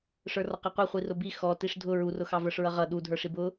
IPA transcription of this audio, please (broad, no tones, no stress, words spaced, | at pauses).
ʂə˞rɔqiqʷʌ χʷirʊbi xɔ tiʂdʱʊ ɹurʊxɑ və˞ʂɹʌʁʌ ɗudʱə˞ʂib ʊ